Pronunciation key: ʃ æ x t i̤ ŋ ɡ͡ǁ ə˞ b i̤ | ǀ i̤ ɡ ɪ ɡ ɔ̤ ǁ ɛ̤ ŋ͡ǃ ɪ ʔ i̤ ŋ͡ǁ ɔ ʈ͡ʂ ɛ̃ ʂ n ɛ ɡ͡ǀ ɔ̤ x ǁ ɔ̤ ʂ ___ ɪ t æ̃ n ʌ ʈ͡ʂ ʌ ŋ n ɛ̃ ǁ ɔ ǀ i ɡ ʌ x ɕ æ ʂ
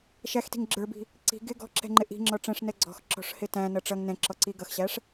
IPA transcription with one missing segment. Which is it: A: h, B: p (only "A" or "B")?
A